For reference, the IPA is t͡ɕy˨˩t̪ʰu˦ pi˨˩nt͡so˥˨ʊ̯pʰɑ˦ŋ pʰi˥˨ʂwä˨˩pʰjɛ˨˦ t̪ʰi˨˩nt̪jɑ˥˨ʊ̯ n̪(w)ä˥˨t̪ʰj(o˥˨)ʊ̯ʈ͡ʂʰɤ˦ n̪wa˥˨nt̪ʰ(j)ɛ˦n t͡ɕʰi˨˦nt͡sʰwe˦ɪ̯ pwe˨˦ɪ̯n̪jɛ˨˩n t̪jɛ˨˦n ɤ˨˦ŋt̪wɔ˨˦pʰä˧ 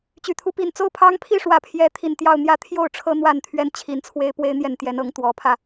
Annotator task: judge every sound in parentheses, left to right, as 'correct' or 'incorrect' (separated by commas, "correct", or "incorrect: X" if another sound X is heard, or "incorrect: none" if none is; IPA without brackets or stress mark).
incorrect: j, correct, incorrect: ɥ